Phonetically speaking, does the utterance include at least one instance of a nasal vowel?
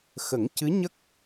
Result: no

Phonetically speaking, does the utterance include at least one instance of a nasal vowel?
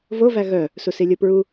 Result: no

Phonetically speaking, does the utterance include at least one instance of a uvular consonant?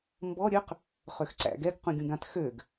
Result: yes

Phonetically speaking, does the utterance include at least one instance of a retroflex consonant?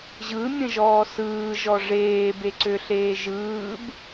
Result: yes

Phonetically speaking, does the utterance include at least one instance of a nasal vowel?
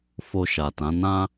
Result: yes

